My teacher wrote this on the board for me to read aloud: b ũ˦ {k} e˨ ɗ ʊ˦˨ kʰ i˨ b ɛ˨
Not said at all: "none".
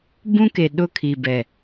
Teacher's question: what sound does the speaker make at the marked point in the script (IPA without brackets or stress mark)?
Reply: k